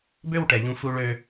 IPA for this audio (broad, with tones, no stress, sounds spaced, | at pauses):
b ø˥˧ w ʈ ɛ˩˧ ʎ ũ˧ f u˧ ɭ ø˧